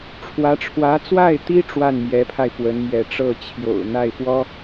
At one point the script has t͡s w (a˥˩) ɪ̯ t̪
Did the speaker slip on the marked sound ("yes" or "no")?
no